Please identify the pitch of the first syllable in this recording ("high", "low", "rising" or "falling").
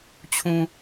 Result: low